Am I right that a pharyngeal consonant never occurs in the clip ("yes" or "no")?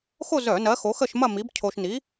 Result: yes